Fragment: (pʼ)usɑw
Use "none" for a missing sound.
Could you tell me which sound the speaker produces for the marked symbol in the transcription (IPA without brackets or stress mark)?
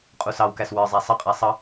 qʼ